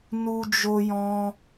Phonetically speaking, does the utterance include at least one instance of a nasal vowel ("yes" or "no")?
yes